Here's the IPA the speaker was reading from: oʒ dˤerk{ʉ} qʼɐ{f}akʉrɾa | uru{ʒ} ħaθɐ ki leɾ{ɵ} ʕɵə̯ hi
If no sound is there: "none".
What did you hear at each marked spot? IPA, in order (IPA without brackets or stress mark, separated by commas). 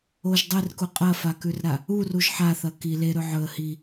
u, f, ʒ, ɵ